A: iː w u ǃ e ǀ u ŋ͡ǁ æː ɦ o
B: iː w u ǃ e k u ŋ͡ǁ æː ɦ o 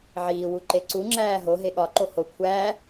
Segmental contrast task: A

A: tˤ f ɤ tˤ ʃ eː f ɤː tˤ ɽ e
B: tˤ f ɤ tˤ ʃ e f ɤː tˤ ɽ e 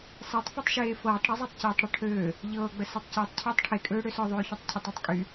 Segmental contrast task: A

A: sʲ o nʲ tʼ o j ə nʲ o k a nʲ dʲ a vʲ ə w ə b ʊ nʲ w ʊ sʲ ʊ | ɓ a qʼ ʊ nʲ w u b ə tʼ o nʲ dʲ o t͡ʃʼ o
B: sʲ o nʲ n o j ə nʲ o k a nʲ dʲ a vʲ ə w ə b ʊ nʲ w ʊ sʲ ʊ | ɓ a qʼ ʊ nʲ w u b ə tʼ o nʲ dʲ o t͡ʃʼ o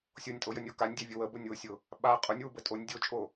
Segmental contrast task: A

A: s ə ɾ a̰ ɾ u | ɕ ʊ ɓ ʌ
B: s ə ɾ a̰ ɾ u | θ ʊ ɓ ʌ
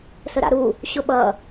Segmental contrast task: A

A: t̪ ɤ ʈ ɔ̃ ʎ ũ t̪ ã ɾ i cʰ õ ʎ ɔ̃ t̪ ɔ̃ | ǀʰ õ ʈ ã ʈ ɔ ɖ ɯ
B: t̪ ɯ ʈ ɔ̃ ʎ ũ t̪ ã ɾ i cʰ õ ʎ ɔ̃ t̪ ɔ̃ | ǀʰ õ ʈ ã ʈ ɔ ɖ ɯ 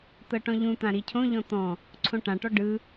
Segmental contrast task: A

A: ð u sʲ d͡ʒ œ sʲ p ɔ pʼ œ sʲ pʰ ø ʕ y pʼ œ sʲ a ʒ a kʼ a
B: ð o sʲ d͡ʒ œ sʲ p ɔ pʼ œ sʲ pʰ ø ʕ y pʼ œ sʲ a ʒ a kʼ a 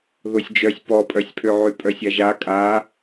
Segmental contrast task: B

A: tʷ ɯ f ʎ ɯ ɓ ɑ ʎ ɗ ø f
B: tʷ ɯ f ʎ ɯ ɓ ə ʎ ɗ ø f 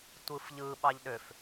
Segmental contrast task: A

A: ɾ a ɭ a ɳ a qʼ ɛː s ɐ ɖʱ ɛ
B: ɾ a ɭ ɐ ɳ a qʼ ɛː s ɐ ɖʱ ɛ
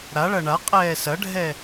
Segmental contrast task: B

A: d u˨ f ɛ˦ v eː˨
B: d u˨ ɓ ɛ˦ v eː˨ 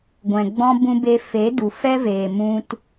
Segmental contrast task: A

